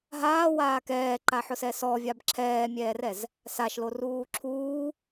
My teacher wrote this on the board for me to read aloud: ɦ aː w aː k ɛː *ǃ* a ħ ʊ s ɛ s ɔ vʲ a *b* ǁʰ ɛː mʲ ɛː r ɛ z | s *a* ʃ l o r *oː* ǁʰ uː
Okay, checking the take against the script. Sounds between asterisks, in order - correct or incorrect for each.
correct, correct, correct, incorrect: uː

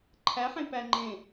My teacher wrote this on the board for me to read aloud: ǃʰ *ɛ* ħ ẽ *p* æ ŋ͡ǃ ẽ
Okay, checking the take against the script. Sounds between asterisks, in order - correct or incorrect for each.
incorrect: æ, correct

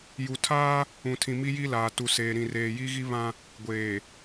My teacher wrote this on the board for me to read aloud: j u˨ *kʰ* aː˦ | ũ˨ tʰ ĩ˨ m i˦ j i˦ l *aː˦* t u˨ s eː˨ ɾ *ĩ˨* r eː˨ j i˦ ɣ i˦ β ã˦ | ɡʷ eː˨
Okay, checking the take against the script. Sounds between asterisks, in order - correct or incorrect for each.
incorrect: tʰ, incorrect: aː˨, correct

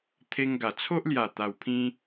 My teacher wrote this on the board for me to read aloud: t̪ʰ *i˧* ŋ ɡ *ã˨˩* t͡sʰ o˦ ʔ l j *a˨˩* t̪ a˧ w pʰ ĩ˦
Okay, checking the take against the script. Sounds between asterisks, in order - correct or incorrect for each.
incorrect: e˧, incorrect: a˨˩, correct

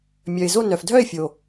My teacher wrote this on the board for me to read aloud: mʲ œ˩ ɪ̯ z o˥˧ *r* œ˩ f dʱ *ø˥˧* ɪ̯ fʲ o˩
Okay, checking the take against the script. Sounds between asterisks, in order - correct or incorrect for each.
incorrect: n, incorrect: œ˥˧

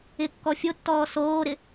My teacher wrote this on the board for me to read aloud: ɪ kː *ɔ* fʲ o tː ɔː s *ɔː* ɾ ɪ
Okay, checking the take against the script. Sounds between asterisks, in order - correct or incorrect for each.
correct, incorrect: oː

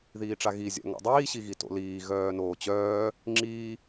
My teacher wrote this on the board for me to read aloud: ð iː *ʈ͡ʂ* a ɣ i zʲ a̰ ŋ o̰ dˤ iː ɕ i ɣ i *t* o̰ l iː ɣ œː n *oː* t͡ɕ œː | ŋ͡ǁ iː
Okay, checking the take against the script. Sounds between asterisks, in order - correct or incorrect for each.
correct, correct, correct

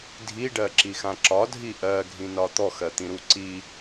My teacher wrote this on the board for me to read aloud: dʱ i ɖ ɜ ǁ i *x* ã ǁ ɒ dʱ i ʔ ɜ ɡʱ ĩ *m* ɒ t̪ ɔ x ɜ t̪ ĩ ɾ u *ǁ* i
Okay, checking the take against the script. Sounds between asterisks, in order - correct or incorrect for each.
correct, incorrect: n, incorrect: ǀ

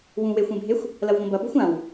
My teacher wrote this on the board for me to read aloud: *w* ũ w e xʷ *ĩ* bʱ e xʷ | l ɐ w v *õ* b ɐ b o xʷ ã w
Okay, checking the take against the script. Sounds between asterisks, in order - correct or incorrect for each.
correct, incorrect: ẽ, correct

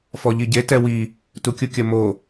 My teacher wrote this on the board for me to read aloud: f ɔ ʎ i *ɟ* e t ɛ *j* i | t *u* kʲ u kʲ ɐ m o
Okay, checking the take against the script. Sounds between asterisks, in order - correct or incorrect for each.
correct, incorrect: w, correct

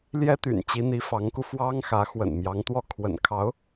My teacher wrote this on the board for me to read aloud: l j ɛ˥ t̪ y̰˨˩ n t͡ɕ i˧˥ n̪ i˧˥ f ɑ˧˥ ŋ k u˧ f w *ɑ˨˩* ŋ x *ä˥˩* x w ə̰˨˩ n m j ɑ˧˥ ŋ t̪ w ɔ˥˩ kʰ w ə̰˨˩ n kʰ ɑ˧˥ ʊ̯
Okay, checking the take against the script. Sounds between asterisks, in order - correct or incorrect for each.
incorrect: ɑ˥, incorrect: ä˧˥

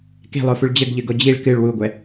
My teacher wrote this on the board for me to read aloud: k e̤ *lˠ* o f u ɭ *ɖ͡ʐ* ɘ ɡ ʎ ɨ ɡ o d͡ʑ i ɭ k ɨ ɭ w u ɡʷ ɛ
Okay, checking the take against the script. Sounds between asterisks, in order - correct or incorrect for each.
correct, incorrect: d͡ʑ

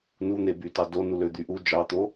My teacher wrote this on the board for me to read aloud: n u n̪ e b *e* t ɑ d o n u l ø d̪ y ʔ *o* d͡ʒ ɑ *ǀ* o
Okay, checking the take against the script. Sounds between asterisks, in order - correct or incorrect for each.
incorrect: y, incorrect: u, incorrect: t̪

